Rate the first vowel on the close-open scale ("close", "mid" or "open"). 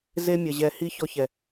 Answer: mid